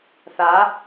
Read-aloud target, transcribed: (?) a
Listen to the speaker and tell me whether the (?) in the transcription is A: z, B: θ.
B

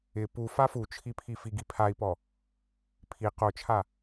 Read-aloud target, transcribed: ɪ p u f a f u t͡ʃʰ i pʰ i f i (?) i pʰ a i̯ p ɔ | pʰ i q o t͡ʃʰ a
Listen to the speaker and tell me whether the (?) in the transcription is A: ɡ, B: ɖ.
A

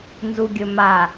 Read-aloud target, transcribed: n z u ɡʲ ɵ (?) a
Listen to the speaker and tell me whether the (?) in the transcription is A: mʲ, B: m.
B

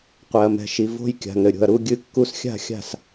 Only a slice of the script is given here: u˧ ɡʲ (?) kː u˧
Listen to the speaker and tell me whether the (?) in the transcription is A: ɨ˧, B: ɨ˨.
A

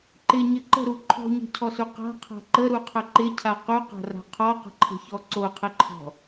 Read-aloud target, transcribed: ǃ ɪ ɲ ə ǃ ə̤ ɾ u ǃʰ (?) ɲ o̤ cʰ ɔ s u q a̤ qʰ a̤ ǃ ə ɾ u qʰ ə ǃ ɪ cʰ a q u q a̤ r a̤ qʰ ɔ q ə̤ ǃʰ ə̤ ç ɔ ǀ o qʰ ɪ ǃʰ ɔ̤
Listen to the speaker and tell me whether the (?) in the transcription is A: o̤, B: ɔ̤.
B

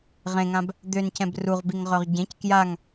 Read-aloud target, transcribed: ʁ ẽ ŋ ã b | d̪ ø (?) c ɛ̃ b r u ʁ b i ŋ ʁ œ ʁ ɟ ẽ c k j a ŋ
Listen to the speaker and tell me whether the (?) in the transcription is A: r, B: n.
B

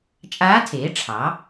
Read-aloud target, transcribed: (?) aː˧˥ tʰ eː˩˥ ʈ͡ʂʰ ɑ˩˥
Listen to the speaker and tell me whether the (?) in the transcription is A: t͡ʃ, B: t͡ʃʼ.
B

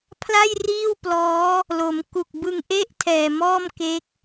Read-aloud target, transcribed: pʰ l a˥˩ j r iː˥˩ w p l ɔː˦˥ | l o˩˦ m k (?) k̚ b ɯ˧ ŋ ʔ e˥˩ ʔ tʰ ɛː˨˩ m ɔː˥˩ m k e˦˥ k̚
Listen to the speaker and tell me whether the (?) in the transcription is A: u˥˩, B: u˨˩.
B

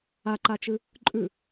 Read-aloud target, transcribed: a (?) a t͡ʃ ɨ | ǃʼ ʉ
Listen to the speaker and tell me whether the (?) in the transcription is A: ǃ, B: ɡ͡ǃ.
A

